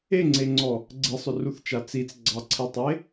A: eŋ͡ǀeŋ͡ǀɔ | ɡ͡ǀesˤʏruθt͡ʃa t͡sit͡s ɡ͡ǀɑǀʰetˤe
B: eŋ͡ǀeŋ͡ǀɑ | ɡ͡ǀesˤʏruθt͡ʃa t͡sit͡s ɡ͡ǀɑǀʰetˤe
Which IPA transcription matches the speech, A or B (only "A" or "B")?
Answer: A